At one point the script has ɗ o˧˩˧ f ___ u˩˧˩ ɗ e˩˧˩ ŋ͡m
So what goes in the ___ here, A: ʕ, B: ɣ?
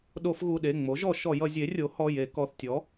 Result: B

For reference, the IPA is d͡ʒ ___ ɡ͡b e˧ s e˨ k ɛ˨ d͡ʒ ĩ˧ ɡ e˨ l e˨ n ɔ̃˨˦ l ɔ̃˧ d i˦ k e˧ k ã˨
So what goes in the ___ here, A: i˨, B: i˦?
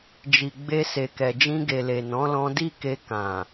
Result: A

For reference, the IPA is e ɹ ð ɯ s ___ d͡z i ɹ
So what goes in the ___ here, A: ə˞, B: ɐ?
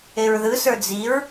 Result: A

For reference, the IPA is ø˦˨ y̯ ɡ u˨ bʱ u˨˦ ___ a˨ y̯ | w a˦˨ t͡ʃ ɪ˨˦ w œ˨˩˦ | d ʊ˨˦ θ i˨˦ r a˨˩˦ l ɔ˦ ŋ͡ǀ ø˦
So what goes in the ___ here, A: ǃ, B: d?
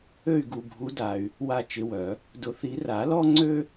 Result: B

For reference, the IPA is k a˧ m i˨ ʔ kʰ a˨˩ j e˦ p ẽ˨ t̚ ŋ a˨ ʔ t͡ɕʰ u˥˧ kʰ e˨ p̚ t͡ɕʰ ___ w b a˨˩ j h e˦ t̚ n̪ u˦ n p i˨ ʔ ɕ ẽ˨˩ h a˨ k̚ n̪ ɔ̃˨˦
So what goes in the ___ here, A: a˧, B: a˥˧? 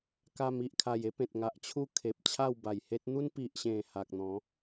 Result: B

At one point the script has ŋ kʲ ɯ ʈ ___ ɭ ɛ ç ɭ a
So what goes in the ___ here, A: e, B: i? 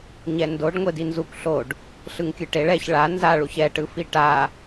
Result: A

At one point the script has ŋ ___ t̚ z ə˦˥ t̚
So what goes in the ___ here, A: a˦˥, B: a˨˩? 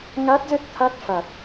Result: A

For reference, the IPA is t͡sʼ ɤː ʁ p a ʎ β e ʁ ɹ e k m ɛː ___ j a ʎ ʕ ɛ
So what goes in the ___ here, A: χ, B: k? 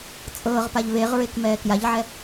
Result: B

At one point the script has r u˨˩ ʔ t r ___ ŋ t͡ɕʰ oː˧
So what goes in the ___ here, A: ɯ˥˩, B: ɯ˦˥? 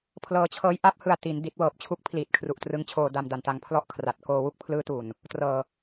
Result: B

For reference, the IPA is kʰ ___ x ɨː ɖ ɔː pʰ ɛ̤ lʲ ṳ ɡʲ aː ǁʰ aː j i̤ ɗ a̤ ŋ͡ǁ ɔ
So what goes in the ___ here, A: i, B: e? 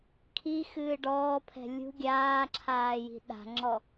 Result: A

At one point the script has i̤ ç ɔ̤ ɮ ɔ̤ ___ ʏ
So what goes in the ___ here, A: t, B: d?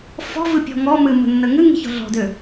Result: B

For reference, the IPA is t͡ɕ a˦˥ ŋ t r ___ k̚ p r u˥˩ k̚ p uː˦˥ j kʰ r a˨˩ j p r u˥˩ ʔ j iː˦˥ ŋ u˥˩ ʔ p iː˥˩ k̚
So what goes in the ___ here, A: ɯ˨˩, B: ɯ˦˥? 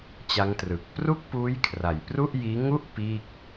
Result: A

